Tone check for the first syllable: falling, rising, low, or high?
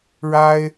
high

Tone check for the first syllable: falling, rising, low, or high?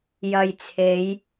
low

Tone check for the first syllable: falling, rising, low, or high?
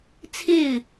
falling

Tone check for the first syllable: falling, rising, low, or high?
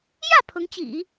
falling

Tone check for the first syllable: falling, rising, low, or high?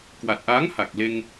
low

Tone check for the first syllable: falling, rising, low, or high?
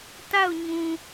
falling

